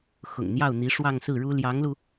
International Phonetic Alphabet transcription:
xʊ̰˨˩ŋn̪jɑ˥˩ʊ̯n̪i˧˥ ʂwɑ˥˧ŋsɹ̩˥˩ɻu˥ ljɑ˧˥ŋlu˧

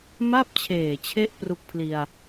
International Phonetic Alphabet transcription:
ma˥˩p̚t͡ɕʰeː˨˩t͡ɕʰe˦˥ʔ pru˦˥k̚pʰli˧a̯

